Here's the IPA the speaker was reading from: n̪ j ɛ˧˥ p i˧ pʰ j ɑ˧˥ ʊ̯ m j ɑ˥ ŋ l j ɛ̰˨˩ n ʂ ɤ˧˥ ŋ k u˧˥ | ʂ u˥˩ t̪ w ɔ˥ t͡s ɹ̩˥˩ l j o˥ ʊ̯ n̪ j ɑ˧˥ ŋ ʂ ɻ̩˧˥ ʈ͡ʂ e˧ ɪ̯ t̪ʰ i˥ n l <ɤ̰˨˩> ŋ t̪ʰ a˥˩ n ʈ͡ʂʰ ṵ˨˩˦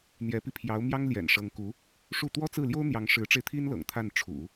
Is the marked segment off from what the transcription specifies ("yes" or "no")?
no